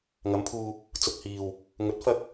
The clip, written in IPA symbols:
ŋ ɐ˨˧ m pʰ uː˧ | t͡s ʊ˨ k̚ h iː˨ w | ŋ ɵ˨˥ t̚ f ɐ˧ k̚

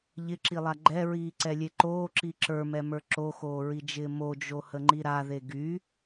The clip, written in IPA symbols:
ʎ ɪ ǁ i lˠ a ɡ͡ǃ ɛ ɹ iː ǀ ɛ lʲ e ǃ oː ǁ i ǁ ə˞ m ɛ m ə˞ ǁ o x oː ɹ i d͡ʒ ɪː m o d͡ʒ o h ə ŋ͡ǃ i ɾ a ð e ɡ y

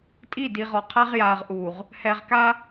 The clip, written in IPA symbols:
tʼ i˦˨ d i˨ ʁ ɔ˨ qʰ a˦ ʁ j aː˨ ʁ ʔ uː˨ ʁ | h ɛ˨ ʁ k a˦

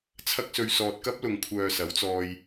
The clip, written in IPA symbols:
t͡sʰ ɐ˥ k̚ s ɵ˧ ɥ s ɔː˨ t̚ k ɐ˥ p̚ l ʊ˨ ŋ kʷʰ œː˨ s ɐ˨˥ w t͡s ɔː˧ j

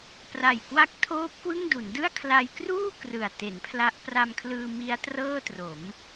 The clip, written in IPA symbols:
p r a˨˩ j k w a˦˥ k̚ tʰ oː˦˥ p̚ k w ɯ˥˩ ŋ d u˩˦ n d ɯ˥˩ a̯ kʰ l a˧ j k r uː˥˩ k r ɯ˨˩ a̯ t e˩˦ n pʰ l a˦˥ ʔ p r a˧ m kʰ l ɯː˧ m i˦˥ a̯ t r ɤː˥˩ t r o˩˦ m

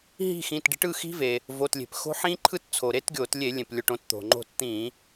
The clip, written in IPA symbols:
ɦ i̤˦˨ x ĩ˩˧˩ t ɖ i̤˨˦ ʈ ɯ˩˧˩ x i̤˦˥ v e˩ | v o˩˧˩ t lʲ e̤˩ p x o̤˦˥ ħ ĩ˦˥ ǃʰ ɯ˦˥ t t͡sʰ o˩ ɾ e˦˥ t ɡʲ o˧˩˧ t lʲ e˧˩˧ lʲ ẽ˩ p lʲ o˩˧˩ ʈ õ˨˦ t t̪ o̤˩ ŋ͡ǃ o̤˦˨ t t̪ ĩ˧˩˧

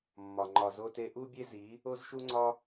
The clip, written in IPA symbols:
mː ɒ˨ ŋ͡ǃ ɒ˨ z o˧ t e˧ ʔ u˦ bʲ e˦ z i˨˦ | o˦ z ʃ u˦ ŋ͡ǀ ɒ˦

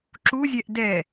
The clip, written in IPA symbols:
ǁ u zʲ ɛ ʔ d ɛ

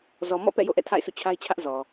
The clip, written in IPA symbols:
z ɔ˨ m ɔ̰˦˨ p ɛ̰˦˨ j o̰˦˨ ʔ ɛ̰˦˨ tʰ a̰˦˨ ɪ̯ sʰ ṵ˦˨ t͡ɕʰ a˦ ɪ̯ t͡ɕʰ ä˦ ʔ z ɔ˨

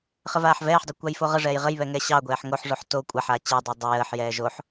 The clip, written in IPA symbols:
χ ə v aː ħ v ɛː ħ dˤ ɛ kʷ ɑ j f o ʁ ə ʐ ɛː j ʁ ə j β ɛ ŋ ɛ ɕ ɑ ɡʷ ɛː ħ ŋ o ħ ʐ o ħ t o kʷʼ a ħ aː t͡ɕ ɛ dˤ ɛ dˤ ə j əː ħ j ɛː ʒ o ħ

